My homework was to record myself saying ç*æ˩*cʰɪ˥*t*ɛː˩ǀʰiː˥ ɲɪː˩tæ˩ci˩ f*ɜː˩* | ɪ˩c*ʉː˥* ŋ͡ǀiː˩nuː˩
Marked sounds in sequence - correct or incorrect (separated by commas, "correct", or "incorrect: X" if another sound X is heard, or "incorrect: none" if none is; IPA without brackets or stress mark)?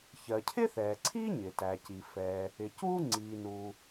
incorrect: ɜ˩, incorrect: θ, incorrect: ɛː˩, incorrect: uː˥